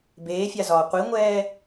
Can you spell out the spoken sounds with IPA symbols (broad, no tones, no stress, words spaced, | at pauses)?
beːfʲazɒː qʷiŋʷɛː